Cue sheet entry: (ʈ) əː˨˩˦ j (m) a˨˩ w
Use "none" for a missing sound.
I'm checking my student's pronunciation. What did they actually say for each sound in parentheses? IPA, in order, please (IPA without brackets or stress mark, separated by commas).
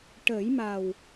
ʈ, m